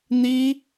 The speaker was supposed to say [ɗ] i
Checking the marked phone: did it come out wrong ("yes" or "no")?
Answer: yes